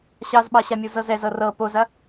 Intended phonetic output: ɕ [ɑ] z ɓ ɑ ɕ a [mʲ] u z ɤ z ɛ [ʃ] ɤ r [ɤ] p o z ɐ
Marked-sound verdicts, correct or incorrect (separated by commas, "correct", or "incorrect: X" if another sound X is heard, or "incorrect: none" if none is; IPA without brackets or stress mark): correct, correct, incorrect: z, correct